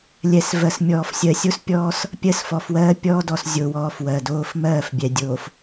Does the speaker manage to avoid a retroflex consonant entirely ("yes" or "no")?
yes